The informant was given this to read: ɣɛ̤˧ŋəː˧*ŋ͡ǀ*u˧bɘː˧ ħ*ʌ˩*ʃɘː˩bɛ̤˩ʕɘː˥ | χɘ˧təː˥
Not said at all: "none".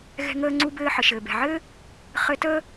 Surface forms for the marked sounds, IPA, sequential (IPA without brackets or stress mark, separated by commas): ŋ͡ǀ, ə˩